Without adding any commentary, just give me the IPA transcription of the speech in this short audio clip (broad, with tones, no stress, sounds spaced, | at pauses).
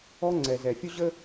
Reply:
ɔ˦ ŋ͡ǀ ɛ˨ z ɛ˨ fʲ ʊ˦ ʑ ə˦